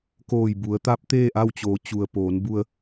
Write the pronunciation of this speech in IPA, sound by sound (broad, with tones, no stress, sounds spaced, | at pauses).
k oː˧˩ j b u˩˧ ə̯ t̪ a˧˥ p̚ t̪ eː˥˨ ʔ a˥˨ w t͡ɕ oː˩˧ t͡ɕ u˩ ə̯ p oː˩˧ n b u˧ ə̯